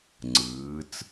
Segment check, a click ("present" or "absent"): present